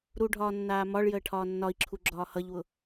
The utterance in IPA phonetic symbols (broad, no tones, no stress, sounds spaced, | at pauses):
ɾ u ɖʱ ɒː nː aː m ɒ ɭ j əː ʈʰ ɒː nː ɒ i̯ ǁʰ u ɡ͡ǁ ɒː h ʌ ʎ w ʊ